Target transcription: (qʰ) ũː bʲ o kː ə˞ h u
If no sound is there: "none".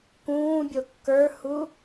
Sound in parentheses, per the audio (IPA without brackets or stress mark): k